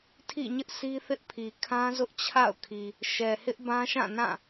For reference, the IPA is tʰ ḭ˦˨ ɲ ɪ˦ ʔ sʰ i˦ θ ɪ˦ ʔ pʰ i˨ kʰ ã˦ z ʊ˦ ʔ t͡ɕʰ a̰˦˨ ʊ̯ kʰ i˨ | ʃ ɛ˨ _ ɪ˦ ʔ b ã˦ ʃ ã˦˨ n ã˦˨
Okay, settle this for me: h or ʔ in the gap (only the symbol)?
h